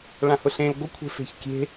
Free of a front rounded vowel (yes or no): yes